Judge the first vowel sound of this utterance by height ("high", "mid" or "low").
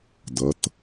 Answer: low